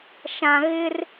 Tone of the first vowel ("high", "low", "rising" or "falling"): low